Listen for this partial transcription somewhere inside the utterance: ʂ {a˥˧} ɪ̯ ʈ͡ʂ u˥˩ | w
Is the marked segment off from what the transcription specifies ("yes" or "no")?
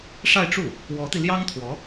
no